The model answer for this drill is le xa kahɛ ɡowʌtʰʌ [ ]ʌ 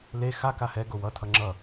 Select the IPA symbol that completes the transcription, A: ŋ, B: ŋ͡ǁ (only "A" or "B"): B